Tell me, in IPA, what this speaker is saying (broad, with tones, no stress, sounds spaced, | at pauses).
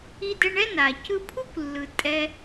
i˧ d ɛ˧ ɳ ɛ˥ n a˩ c ɯ˧ pʰ u˥ kʷ lː ɯ˩ tʼ ɛ˧